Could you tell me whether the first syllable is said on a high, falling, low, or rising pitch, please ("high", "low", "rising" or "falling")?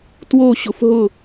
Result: falling